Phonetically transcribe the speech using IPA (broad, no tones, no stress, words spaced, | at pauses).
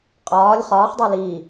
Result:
qʼɒːlʲ χɒːχdˤo li